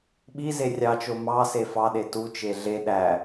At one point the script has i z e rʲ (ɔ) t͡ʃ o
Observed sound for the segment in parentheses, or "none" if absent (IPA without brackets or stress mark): ɑ